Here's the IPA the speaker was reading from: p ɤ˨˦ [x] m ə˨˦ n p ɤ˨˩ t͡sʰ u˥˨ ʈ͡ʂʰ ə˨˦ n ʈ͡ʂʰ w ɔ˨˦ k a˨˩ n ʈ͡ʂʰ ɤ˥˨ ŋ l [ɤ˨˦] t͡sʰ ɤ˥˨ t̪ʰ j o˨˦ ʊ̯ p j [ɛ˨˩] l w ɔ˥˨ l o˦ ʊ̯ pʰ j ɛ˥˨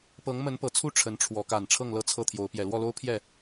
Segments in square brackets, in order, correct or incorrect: incorrect, incorrect, correct

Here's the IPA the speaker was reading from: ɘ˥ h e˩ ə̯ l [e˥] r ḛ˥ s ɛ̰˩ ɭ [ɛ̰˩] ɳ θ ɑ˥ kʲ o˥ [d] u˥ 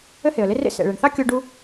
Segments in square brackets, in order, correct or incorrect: correct, incorrect, incorrect

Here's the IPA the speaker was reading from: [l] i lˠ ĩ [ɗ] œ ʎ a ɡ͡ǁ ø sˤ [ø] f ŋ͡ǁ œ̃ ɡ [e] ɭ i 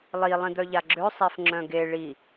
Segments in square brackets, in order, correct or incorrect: incorrect, incorrect, incorrect, correct

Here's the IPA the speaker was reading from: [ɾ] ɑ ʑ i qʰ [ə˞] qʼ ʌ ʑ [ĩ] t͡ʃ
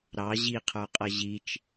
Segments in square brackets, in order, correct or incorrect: correct, correct, incorrect

